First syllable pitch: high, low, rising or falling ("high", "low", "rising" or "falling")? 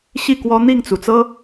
falling